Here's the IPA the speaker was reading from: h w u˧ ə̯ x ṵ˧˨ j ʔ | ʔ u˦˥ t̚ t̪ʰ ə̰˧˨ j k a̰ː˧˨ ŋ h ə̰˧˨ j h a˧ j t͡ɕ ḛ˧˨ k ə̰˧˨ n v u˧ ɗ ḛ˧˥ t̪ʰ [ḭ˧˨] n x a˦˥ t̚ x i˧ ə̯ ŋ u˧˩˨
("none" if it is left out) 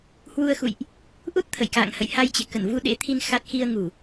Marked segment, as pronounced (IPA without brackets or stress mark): i˧